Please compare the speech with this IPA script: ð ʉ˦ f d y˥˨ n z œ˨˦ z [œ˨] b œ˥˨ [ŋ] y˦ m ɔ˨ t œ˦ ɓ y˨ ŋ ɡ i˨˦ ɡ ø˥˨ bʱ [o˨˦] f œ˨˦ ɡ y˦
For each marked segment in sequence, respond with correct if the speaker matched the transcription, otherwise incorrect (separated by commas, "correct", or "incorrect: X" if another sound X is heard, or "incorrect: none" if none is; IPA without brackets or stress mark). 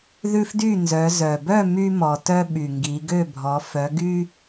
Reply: correct, incorrect: m, incorrect: ɔ˨˦